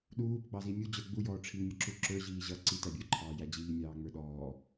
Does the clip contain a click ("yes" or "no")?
yes